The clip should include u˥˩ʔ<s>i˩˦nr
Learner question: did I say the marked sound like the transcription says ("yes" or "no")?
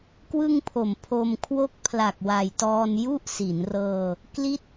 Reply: yes